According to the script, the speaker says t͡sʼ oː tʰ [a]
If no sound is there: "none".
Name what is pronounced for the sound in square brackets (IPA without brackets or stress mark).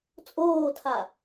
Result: a